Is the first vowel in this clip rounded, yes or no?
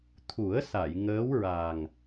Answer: yes